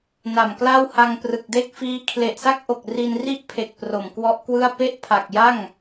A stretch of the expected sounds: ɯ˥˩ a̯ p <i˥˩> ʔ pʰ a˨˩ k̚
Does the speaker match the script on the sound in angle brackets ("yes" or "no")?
no